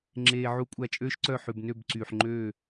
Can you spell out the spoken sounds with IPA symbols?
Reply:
ŋ͡ǁeː˨ ʕu˧kʷʼæ˧t͡ʃʼøː˦ʃǀœ˦˨ ħʉ˨bnø˦˨bǀyː˨ħŋ͡ǃøː˦˨

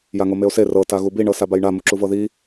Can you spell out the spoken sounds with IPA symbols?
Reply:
jaŋomeo̯se rɤ taɣubi ɳɤsabajɳa muǁuvɤði

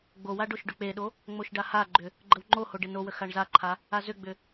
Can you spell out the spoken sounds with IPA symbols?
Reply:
ɡ͡bowa ɖoʃɖʏk͡peɗo | ŋ͡moʃɖahaɡ͡ǃʏ | ɡ͡ǃəwŋ͡ǃoho ɖenowə xaɳzaǃʰa | azʏɡ͡bʏ

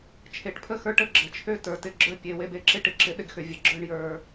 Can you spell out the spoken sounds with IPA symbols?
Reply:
t͡ʃʰe˨ʈpʰə˦xə˞˧ʈə˦ ɡ͡ǁə˨t͡ʃʰø˦ tə˞˨tɪ˧ɡ͡ǁə˞˦ pʲe˨we˧be˧ ǁɪ˦ ʈɪ˧ǁɪ˧ ɗɪ˧ɡxʏ˨ vʲə˨ɡ͡ǁə˞˧ɳ jə˞˨

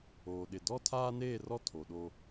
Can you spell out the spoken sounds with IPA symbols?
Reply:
oː˨ɗɪ˨ dɔ˦tʰaː˦neː˦˨rɔ˦ tʰo˨ɗo˦

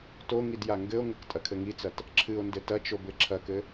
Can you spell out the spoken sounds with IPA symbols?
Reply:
toŋid jaŋɡɘo̯ŋɘk tʼɐkʰɘŋit͡sɐt | ǁʰɨo̯ndɘ tɐt͡ʃo bɘǁʰɐkɘ

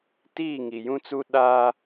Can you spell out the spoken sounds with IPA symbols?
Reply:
tiː˦˨ ŋi˨jũ˦t͡su˦ ɗaː˦

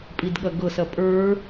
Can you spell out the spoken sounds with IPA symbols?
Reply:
pʼidɠɐɡɤsɐ pʼə˞

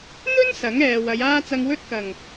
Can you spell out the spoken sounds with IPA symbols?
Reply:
n̪ɵ˥n sɐ˨˥ŋɛː˨wɐ˨˧jaː˥ t͡sɐ˧ŋwɵ˥t̚kɐ˨˩ŋ

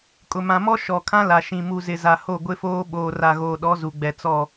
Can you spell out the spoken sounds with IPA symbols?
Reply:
kʼʊ˨mã˨mɔ˦ ʃɔ˨ kʰã˦la˨ʃĩ˨ mu˨zɪ˨za˨ ho˦˨ɡʷɪ˦foː˦ ɓoː˨ra˨ɣoː˨ɗɔ˨˦ zu˨ɡ͡bɛ˨ t͡sɔ˦˨

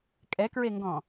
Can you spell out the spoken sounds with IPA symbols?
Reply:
kʼɛkɹeŋɡɔ̃

